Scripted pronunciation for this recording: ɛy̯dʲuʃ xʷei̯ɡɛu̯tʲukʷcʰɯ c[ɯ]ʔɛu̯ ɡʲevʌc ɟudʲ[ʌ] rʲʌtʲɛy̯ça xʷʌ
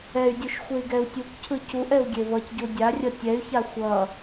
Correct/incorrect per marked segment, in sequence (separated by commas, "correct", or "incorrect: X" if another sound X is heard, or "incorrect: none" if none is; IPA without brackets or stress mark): incorrect: u, incorrect: a